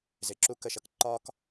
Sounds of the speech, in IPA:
z ɪ˨˦ ǁ u˦ k ə˦˨ ʃ ʌ˧ k ǃ ɒ˧ k

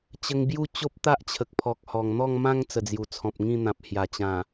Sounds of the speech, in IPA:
t͡ɕ ə˧ ŋ b j u˥˧ t͡ɕ o˦ p̚ t̪ a˦ ʔ t͡ɕʰ ə˨ k̚ pʰ ɔ˨ k̚ h ɔ˨˩ ŋ n̪ ɔ˥˧ ŋ m ã˦ ŋ t͡s ə˨˩ d͡z j u˨˩ t͡sʰ ɔ̃˨ p̚ ŋ ĩ˥˧ n̪ ã˨ p̚ h j a˨˩ t͡ɕ ã˨˩

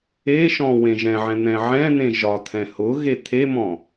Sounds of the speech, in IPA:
e ʃ ɔ̃ w ẽ ʒ ɛ̃ ʕ ɛ̃ n̪ ɛ̃ ʕ ɛ̃ n̪ ẽ ʒ ɒ t̪ʰ ɛ̃ h ʊ ɣ e t̪ʰ e m ɔ̃

